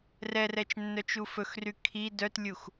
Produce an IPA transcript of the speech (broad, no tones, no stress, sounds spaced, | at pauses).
r ɛ r ɛ t͡ʃ nː œ t͡ʃ u f ɵ x r y kʰ i d œ t lʲ u x